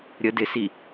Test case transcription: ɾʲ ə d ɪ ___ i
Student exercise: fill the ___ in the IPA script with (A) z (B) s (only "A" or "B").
B